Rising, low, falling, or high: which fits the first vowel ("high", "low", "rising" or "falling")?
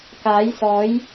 rising